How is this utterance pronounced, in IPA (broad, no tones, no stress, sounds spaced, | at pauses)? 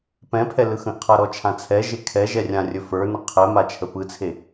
p ɛ̃ pʰ ɛ l ɯ x ə̃ ʔ qʰ a ɾ ɔ t͡ʃʰ ã t͡sʰ ɛ ʒ e kʰ ɛ ʒ ɛ rʲ ã rʲ ɵ f ə˞ n ə qʰ ɛ m a t͡ʃʰ ə p ɯ t͡sʰ e